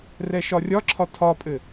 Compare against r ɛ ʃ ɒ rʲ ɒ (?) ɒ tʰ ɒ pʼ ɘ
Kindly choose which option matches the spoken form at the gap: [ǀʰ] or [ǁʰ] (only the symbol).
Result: ǁʰ